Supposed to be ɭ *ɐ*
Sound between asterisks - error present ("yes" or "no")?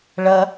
no